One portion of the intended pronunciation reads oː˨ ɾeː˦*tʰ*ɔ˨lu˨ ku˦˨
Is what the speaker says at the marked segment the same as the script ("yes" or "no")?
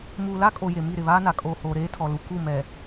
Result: yes